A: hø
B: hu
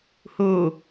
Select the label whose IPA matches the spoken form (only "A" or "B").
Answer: B